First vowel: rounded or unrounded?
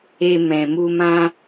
unrounded